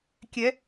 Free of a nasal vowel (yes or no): yes